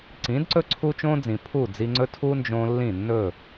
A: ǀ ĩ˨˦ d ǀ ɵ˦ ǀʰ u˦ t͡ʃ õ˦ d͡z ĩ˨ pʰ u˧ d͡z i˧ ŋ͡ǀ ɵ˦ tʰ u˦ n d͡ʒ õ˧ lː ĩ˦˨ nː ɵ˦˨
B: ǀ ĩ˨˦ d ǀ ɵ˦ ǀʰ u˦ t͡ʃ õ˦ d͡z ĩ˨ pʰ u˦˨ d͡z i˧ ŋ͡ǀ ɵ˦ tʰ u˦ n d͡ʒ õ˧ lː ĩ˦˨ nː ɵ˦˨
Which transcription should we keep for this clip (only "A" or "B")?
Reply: B